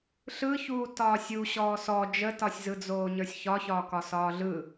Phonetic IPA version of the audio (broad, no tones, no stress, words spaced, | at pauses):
ɬɯçuː tɒːsʲu ɕɔːsɔ d͡ʒətɒsʲzɯd͡zoː ɲə˞sʲçɒçɒːkɒ sɒːɮɯ